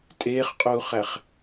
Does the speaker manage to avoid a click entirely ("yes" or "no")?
yes